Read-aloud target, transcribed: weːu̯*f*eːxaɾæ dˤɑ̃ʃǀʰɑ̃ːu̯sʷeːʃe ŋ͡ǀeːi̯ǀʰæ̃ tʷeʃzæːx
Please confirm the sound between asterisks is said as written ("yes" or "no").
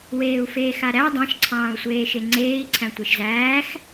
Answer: yes